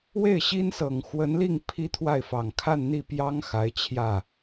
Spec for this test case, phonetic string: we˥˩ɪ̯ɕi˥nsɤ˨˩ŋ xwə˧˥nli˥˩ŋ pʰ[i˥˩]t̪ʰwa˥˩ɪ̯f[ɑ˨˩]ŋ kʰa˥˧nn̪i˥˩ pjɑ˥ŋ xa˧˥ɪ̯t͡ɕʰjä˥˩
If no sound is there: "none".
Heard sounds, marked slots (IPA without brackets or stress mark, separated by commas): i˥, ɑ˨˩